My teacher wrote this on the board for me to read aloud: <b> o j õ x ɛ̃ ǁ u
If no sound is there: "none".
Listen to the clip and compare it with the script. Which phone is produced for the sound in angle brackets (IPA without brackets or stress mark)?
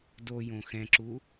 d